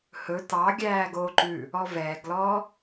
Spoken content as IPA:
h ɵ t ɑ ɡʲ æː ɡ oː ǃ ʉ | ɔ v ɛː ɡ l ɔː

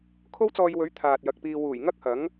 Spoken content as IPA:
kʰ o˥ w t͡s ɔː˧ j w ɵ˨˥ ɥ t̪ʰ aː˨ t̚ j ɐ˨ k̚ p iː˧ w uː˨˩ j ŋ ɐ˥ k̚ h ɐ˨˥ ŋ

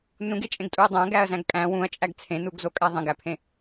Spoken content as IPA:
n ũ ɡ e t͡ʃʼ ẽ ɡ tʼ u ɐ̯ dˤ æ̃ ɡ æ ɐ̯ z æ̃ ɡ kʼ æ̃ w ũ ɐ̯ t͡ʃʼ æ ɡ t͡sʰ ẽ n u ɡ z o kʼ æ ðˤ ẽ ɡ æ pʰ ẽ

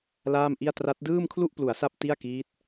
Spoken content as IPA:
l aː˥˩ m ʔ i˥˩ a̯ t r a˦˥ t̚ d ɯː˥˩ m kʰ l u˥˩ ʔ p l u˩˦ a̯ s a˥˩ p̚ t i˥˩ a̯ k iː˦˥ t̚

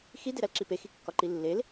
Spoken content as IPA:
x i d e ɾ æ l ǁ i p e x i kː ɒ ǃ i lː e l

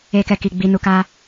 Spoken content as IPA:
e˧ k ɛ˧ k i˨ ɡ͡b i˧ n u˧ k a˦

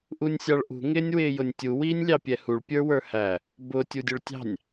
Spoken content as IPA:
ʔ u nʲ sʲ ɑ ɭ ʔ ṳ ŋ ɪː nʲ w ɪː j ʊ nʲ tʲ u w iː nʲ lʲ ɑ pʲ ɛ h u ɭ pʲ ə˞ w ə˞ h æ | b ʊ tʲ u dʲ ʊ ɭ tʲ ɑ̤ nʲ

